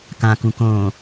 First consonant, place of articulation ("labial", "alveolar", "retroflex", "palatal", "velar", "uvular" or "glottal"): velar